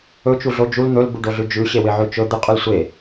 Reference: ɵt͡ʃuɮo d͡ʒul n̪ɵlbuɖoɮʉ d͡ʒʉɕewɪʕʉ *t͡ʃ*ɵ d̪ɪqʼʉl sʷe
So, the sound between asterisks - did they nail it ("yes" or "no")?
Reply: yes